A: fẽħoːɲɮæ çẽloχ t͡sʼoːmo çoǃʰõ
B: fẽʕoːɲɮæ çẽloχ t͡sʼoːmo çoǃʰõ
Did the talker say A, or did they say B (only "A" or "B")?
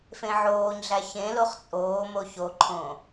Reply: B